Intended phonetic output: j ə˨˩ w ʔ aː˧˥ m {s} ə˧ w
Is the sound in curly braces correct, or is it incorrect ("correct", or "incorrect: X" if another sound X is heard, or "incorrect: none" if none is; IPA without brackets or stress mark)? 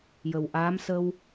correct